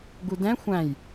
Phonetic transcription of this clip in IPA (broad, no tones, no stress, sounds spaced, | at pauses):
ɡ u d ɛ̃ xʷ æ̃ j